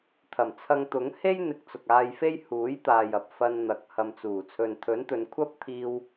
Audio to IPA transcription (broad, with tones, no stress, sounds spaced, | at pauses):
t̪ʰ ɐ˨˩ m t͡sʰ ɐ˧ ŋ t̪ ʊ˨˥ ŋ h e˥ j n̪ ɪ˨˥ k̚ t͡s ʊ˨ k̚ aː˧ j f e˥ j h uː˨˥ j t̪ aː˨ j ɐ˨ p̚ f ɐ˧ n n̪ ɐ˨ k̚ h ɐ˨ m t͡s uː˨˩ t͡sʰ ɵ˨ n t̪ʰ ɵ˨˥ n t̪ ɵ˨˧ n kʷʰ ɐ˥ p̚ t̪ʰ iː˧ w